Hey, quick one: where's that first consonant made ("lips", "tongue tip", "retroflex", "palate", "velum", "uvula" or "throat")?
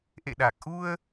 throat